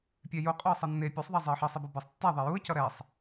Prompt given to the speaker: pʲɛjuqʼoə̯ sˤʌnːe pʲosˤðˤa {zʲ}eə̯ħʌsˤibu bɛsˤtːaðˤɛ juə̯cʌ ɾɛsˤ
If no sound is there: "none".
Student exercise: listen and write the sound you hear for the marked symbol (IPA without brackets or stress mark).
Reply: zˤ